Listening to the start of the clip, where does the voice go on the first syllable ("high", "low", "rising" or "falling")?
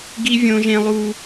high